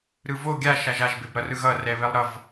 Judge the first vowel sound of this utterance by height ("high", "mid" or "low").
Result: high